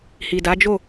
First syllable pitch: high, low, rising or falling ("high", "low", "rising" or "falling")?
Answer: low